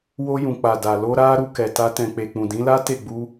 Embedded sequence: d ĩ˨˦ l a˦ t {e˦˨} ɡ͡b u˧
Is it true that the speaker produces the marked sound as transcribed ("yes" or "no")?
yes